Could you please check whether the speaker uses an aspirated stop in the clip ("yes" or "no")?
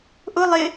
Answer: no